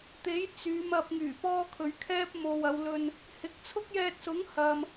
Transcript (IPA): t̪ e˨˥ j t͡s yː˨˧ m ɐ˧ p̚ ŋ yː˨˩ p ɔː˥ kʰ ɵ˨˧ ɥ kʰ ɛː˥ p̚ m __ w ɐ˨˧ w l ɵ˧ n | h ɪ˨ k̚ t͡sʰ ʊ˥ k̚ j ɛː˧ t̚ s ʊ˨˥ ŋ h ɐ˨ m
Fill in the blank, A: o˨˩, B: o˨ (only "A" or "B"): B